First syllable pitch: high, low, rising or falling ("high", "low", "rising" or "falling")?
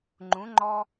rising